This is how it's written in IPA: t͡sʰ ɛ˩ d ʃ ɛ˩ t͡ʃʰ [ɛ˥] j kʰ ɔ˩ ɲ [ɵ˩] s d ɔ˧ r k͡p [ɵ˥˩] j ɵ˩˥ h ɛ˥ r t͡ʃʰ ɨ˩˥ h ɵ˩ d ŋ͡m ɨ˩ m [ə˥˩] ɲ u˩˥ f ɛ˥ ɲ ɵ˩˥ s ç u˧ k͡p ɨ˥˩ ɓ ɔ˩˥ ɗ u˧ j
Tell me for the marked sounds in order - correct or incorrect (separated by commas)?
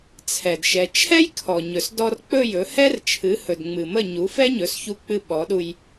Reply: correct, correct, correct, correct